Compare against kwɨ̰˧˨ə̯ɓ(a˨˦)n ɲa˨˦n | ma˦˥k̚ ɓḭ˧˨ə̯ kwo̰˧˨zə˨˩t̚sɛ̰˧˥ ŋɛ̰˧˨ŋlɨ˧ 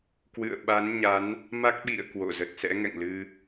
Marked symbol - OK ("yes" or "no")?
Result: yes